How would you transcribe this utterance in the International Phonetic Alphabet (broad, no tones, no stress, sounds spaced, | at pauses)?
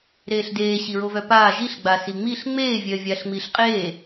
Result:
ɾ eː ɬ d eː ɕ i ɹ o v œ p aː ʒ i ɬ ɡ͡b a s i ŋ͡m i ɬ ŋ͡m eː vʲ œː vʲ aː ɬ ŋ͡m iː ɬ qʼ eː